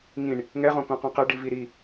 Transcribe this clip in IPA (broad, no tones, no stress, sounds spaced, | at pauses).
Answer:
ŋ ĩ ɳ | ŋ ɛ ʁ õ k õ q õ q ɛ ɖ i v i ɾ i